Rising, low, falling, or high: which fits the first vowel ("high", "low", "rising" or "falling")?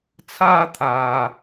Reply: high